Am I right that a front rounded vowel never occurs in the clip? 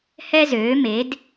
no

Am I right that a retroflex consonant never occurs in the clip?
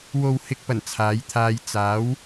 yes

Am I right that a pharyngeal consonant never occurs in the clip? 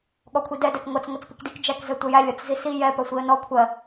yes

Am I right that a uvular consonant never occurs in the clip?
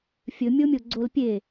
yes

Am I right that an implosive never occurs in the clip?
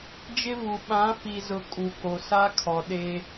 no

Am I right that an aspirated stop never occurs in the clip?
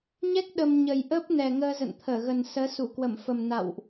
no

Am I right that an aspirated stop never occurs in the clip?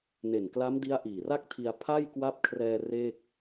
no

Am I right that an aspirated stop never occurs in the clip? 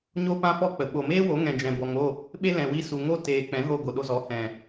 yes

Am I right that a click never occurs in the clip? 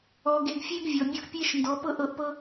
yes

